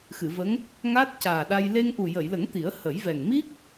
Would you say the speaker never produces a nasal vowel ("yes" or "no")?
yes